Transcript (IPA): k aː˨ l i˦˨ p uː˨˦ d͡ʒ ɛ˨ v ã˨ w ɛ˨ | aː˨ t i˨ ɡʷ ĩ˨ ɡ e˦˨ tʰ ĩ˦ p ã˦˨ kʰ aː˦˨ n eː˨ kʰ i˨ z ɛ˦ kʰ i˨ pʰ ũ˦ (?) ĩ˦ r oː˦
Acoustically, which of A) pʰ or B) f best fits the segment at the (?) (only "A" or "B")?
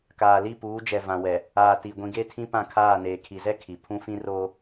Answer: B